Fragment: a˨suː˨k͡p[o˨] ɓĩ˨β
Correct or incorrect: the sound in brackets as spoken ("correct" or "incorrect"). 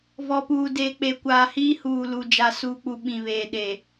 incorrect